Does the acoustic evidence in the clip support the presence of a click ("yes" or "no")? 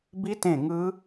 no